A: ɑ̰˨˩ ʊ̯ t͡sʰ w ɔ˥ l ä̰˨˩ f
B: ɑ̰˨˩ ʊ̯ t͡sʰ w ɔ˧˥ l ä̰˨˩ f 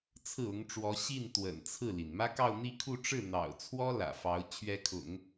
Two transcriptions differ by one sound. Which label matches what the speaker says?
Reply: A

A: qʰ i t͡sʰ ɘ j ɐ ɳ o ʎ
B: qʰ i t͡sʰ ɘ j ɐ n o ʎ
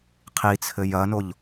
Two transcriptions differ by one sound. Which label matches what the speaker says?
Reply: B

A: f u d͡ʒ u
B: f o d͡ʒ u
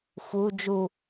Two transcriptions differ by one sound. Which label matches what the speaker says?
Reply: A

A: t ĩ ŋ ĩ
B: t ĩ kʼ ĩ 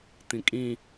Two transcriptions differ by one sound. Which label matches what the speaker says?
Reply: B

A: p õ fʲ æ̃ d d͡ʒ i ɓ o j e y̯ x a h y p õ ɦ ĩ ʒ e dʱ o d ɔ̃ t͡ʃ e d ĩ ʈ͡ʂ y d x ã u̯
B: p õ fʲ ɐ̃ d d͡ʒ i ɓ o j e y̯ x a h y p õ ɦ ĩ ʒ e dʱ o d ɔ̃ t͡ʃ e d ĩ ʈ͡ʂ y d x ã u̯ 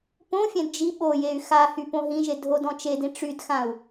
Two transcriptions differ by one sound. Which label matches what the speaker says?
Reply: A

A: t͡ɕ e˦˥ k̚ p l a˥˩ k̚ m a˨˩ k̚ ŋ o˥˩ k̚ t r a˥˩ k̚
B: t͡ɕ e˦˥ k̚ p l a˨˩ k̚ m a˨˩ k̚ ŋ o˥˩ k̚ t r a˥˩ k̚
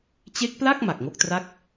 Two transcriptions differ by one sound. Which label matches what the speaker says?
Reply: A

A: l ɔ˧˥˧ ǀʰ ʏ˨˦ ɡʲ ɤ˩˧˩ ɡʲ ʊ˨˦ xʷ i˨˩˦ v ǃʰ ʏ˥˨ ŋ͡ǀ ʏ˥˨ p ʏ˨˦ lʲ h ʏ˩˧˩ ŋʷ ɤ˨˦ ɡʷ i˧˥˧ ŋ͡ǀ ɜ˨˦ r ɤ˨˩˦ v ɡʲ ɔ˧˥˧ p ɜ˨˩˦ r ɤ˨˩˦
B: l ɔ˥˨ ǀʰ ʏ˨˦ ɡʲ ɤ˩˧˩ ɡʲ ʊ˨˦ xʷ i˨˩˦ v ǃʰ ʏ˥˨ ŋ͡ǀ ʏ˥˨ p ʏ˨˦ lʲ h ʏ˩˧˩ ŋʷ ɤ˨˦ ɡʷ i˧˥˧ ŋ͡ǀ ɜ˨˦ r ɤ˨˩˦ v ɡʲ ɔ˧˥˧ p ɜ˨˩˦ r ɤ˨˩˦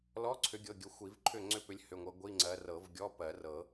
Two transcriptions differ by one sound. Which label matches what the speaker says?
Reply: A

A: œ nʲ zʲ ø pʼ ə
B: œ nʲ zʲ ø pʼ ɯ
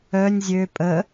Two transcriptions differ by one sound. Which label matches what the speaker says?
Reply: A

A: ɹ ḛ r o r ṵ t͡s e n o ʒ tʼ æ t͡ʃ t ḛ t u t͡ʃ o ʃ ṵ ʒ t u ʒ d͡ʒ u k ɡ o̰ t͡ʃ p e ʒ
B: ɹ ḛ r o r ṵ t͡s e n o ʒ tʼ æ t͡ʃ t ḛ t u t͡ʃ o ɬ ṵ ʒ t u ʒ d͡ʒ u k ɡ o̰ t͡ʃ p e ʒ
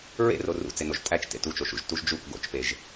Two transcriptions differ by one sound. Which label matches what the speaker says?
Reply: A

